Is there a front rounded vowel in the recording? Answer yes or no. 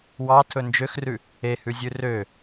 yes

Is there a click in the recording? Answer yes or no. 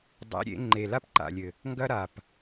yes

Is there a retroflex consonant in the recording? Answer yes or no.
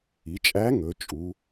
no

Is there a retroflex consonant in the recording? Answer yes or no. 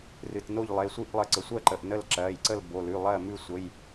no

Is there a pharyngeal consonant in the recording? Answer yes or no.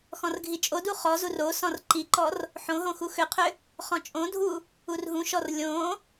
yes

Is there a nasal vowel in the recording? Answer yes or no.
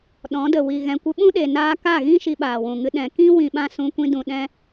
yes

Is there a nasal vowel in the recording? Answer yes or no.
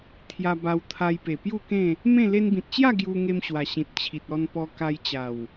yes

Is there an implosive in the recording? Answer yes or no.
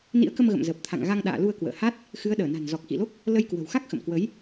yes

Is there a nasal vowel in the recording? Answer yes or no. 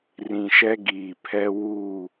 yes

